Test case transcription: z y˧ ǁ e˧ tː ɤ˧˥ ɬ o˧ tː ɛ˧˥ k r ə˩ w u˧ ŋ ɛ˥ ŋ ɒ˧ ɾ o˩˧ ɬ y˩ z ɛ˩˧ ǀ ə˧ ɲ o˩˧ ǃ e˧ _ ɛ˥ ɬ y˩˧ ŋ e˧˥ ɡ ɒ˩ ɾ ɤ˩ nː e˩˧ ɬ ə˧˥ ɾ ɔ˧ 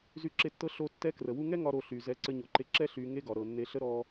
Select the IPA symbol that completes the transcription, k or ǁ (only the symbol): ǁ